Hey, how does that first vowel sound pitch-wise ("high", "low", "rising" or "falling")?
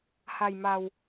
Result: low